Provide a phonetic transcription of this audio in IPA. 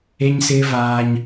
e˦ ɲ s ɪː˦ v aː˦ ɲ

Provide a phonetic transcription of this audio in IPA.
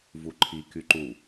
v u ǃʰ i k y ǃ u

